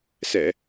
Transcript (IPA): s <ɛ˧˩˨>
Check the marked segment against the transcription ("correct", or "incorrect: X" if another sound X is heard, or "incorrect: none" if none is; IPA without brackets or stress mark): correct